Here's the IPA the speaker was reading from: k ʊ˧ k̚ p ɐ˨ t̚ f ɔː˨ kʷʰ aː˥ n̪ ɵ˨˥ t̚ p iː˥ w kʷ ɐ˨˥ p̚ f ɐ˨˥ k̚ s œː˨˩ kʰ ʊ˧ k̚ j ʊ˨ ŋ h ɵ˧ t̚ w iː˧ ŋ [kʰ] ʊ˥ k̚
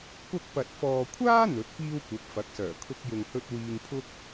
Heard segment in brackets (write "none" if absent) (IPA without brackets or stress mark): pʰ